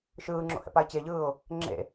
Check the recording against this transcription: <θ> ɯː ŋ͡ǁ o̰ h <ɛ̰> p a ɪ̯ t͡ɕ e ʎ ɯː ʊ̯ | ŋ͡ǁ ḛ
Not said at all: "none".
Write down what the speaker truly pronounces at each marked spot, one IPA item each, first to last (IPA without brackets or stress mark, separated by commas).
ʃ, ɛ̰